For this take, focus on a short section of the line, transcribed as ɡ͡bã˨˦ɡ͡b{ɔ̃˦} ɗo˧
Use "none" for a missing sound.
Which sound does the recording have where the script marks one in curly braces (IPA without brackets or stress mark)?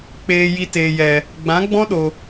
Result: ɔ̃˦